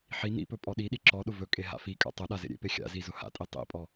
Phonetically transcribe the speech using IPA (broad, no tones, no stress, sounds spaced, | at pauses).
ħ i n ḭ p ɵ pʼ ɔ ɗ i ɗ i ǁ ɔ ɗ ʊ v ɵ kʼ e ɦ a̰ f i kʼ a̰ tˤ ʊ ɗ a z ḛ ɾʲ ḛ p e xʲ a̰ z i z ʊ h a̰ tʼ i tˤ ḭ pʼ ɔ